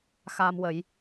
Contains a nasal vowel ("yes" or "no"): no